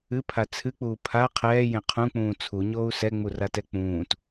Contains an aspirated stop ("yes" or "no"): yes